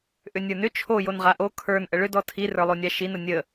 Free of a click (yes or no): yes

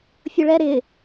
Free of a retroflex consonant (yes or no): no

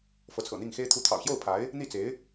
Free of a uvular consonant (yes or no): yes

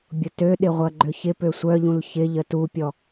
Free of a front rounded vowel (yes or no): no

